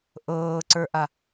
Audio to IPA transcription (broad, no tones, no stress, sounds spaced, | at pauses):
ʔ ɤː ǀ ə˞ ʔ a